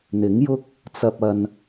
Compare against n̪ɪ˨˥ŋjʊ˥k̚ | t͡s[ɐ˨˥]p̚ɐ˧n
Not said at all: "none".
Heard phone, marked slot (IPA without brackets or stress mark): ɐ˧